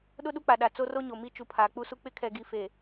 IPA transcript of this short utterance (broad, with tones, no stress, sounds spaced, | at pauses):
ɗ ʊ˦ ɗ u˦ k͡p a˨ ɗ a˨ t͡s o˦ r o˦ ɲ o˨ m i˦ t͡ʃ u˨ pʰ aː˨ k͡p u˦ s u˦ k͡p ɪ˦ kʰ ɛ˨ ɡ i˨ f e˨